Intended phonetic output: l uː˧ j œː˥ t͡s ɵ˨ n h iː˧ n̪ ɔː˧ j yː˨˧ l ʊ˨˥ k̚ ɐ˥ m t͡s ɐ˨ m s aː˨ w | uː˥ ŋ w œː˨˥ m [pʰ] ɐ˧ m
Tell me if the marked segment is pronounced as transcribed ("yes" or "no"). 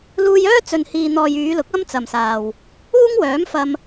no